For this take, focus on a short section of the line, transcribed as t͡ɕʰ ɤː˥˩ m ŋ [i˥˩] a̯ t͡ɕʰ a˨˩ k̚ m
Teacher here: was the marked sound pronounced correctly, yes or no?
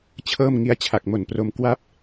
no